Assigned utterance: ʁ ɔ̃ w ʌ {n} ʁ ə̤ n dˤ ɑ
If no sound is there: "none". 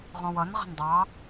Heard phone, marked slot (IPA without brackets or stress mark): n